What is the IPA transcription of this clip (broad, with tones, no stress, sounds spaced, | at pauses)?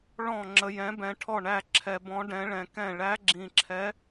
ɭ ɔ̃˥˩ ŋ͡ǁ ə˧ j ɛ̃˧˥ b ɛ̃˧ ʈʰ ɔ˥˩ ɳ æ˥˩ ǁʰ ɛ˧ b ɔ̃˧˥ ɖ ɛ̃˧˥ ɭ ɛ̃˧ k ɛ̃˥˩ ɭ æ˧˥ ɡ͡ǁ ĩ˧ ǁʰ ɛ˧˥